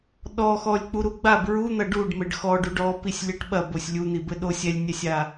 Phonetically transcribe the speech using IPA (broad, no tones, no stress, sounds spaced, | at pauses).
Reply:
ɗ ɔ x ɔ lʲ k͡p u ɾ u ɡ͡b a b ɹ u n̪ ɐ ɖ u ɖ m ɘ ɖ x ɔ ɖ u ɖ ɔ p i sʲ lʲ ɘ ʈ ɓ ɐ b o sʲ lʲ u n̪ i b ɘ ɗ o sʲ ɛ lʲ nʲ ɛ sʲ a